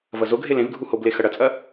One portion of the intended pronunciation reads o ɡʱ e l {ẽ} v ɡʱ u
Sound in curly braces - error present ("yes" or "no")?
no